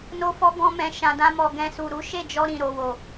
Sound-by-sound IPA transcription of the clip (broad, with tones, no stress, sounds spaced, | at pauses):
n o˦ f ɔ˦ ɡ ɔ̃˦ m ɛ̃˧ ʃ ã˧ d ã˦ m ɔ˧ ɡ ɛ̃˧ s u˨ ɾ u˨˦ ʃ e˦˨ d͡ʒ ɔ˧ ɾ ĩ˨ ɾ o˨ w o˨